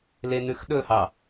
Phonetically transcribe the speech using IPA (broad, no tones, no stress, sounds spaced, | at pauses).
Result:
l e n ʉ x ɗ ɵ h ɑ